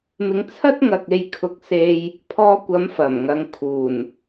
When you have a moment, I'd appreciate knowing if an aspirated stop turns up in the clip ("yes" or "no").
yes